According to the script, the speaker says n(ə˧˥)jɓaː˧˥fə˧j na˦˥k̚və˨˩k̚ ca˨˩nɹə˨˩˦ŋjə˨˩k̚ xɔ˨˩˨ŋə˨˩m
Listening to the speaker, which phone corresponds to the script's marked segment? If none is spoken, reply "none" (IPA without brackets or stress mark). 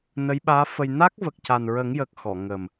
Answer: ə˧˥